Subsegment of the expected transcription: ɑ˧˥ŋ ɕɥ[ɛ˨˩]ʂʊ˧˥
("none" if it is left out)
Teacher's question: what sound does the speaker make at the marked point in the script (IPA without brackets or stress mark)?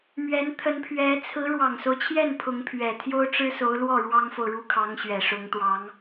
ɛ˨˩